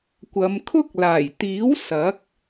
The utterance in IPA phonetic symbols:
kʷ ɐ˨˧ m kʰ ʊ˥ k̚ l aː˨˩ j t̪ iː˨˥ w s ɐ˨˥ k̚

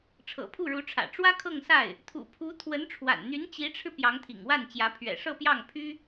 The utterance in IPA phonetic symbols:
ʈ͡ʂʰ ɤ̰˨˩ pʰ u˥˩ ɻ u˧˥ ʈ͡ʂʰ ä̰˨˩ ʈ͡ʂ w ä˥ kʰ ɤ˥˧ ŋ s a˥˩ ɪ̯ | t̪ʰ ṵ˨˩ pʰ u˧˥ t̪ʰ w ə˧˥ n ʈ͡ʂʰ w a̰˨˩ n n̪ y˧˥ n t͡ɕ i˧˥ ʈ͡ʂʰ ɻ̩˧ p j ɑ˧˥ ŋ t̪ʰ ḭ˨˩ ŋ w a˥˩ n t͡ɕ j ä˧˥ pʰ ɥ ɛ̰˨˩ ʂ ɤ˥˧ p j ɑ˥˩ ŋ pʰ y˥

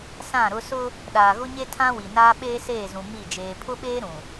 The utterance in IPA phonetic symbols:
s ã˦˨ ɾ ʊ˦ s ʊ˦ | ɗ aː˨ ɣ ʊ˦ ɲ e˦ tʰ ã˦ w i˨ n aː˦ ɓ eː˦ s eː˦˨ z ũ˨ m i˦˨ d͡ʒ eː˨ pʰ ʊ˦ ɓ eː˦ ɾ ũ˨

